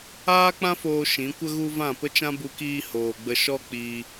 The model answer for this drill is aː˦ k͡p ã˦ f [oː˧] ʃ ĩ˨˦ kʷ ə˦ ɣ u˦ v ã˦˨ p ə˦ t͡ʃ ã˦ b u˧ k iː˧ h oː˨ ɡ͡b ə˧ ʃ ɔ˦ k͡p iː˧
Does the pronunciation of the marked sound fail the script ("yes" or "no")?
no